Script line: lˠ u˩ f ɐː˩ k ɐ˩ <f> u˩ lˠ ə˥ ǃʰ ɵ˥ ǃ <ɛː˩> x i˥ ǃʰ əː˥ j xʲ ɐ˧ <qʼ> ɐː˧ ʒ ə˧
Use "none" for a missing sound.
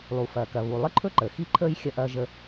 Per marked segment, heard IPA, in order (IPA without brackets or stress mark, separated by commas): β, əː˩, ʔ